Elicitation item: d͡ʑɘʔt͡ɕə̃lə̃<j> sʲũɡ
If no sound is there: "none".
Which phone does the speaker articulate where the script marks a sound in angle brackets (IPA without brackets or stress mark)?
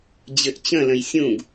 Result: j